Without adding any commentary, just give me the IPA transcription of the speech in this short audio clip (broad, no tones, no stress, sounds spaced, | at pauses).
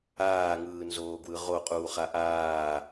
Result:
aː ŋ ɯː n z oː ɡ w ɯ ʁ o qʼ uː χ a ʔ aː